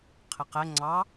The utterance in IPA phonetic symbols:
qʰɪqɛ ŋ͡ǀɑ

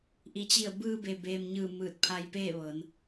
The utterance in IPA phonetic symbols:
ʔi˩t͡ɕi˧˩ə̯bɯː˧be˩ beː˩mɲɯː˧˩ mɯː˧˩t̚pʰa˧jpeː˥˨ʋɤː˩˧n

